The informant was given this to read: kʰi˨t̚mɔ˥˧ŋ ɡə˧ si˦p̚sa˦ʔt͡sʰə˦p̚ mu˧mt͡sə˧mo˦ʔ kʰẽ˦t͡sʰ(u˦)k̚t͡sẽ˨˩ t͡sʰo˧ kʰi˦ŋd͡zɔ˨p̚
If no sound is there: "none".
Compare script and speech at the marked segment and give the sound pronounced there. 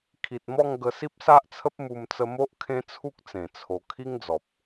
u˦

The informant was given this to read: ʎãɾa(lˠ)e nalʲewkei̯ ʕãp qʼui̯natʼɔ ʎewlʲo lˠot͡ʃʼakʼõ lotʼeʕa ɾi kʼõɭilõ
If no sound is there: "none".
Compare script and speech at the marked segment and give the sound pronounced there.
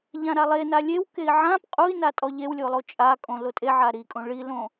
lˠ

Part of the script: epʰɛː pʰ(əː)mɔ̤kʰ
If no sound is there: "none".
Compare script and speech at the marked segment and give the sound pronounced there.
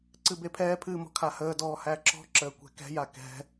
ɨː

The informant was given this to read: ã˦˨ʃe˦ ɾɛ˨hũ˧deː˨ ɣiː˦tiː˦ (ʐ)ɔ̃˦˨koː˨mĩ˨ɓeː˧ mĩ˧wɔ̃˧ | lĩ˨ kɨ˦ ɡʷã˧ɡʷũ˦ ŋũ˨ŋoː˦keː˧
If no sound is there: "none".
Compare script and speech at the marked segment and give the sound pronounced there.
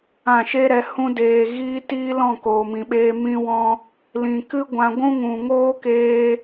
l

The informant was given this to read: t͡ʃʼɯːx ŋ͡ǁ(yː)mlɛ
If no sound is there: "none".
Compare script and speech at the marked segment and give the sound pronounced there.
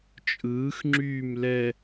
yː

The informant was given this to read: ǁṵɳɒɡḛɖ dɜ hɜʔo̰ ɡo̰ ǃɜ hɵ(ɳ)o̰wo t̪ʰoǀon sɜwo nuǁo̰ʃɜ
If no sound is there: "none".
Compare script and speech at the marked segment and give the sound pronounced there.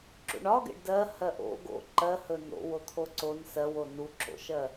n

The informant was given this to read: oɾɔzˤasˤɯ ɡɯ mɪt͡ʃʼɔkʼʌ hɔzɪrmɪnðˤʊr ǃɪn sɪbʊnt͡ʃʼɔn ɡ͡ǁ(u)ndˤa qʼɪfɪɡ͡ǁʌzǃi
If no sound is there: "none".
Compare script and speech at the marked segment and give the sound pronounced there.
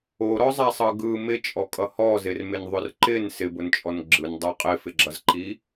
ɯ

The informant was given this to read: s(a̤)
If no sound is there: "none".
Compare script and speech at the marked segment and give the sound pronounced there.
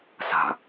a̤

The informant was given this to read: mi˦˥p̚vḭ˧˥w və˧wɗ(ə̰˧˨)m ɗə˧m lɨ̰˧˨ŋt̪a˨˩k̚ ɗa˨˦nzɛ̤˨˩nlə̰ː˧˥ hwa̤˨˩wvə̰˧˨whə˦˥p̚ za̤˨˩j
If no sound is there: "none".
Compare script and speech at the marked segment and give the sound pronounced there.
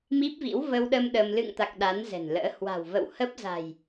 ə˧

